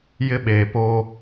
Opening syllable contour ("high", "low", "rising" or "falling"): high